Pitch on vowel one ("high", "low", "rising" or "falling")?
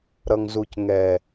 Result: low